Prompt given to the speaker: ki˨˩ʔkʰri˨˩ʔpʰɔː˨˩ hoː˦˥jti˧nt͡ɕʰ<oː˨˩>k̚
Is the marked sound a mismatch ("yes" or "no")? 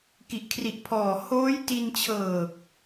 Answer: yes